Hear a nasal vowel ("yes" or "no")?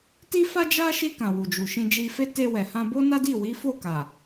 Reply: yes